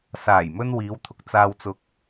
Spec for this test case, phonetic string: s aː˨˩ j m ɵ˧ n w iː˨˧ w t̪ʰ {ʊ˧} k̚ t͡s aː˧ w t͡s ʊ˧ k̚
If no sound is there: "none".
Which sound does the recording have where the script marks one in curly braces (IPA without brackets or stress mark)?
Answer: ʊ˧